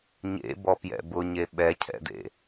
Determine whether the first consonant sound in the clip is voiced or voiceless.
voiced